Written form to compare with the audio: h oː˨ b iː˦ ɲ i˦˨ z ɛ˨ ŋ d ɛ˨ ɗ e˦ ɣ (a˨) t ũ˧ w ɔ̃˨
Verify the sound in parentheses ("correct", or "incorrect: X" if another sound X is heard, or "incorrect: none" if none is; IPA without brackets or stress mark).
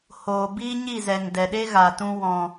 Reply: correct